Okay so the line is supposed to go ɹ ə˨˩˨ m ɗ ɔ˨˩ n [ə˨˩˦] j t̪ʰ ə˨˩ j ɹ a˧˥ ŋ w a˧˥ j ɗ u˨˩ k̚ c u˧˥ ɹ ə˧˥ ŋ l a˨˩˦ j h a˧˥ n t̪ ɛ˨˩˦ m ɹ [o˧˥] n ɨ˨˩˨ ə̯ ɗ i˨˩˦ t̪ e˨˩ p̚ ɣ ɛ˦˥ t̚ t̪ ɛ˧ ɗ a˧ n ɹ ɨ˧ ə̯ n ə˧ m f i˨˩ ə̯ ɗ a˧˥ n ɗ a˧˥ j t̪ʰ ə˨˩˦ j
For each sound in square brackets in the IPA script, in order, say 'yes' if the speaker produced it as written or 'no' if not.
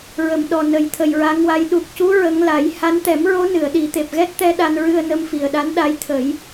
yes, yes

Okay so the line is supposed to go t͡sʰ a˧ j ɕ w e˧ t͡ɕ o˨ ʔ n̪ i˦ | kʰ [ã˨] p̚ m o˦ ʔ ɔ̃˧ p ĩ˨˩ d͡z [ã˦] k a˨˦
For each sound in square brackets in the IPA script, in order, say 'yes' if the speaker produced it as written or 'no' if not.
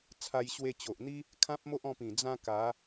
no, yes

